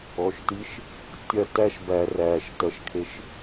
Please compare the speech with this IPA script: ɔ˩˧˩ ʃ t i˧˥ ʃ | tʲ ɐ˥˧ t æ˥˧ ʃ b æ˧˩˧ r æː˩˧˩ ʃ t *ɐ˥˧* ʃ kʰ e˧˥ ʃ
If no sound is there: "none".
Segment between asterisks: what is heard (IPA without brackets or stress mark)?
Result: ɐ˧˥